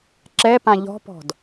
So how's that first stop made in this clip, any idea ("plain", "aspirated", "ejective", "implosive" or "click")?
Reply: click